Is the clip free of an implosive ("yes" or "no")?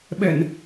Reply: no